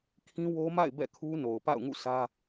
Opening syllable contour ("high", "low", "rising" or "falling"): high